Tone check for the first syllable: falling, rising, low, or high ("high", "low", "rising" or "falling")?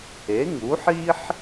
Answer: rising